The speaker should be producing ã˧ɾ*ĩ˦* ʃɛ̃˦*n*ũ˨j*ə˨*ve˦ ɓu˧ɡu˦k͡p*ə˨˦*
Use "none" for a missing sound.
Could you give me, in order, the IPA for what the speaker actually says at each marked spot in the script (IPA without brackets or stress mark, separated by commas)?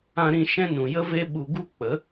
ĩ˧, n, ə˦, ə˨˦